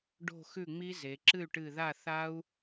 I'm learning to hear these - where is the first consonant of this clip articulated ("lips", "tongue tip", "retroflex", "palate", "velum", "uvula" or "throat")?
retroflex